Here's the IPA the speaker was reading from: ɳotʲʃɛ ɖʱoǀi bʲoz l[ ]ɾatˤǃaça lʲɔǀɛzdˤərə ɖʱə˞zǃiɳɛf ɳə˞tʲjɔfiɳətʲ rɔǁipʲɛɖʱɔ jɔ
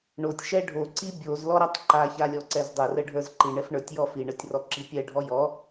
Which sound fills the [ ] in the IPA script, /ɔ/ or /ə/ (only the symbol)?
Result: ɔ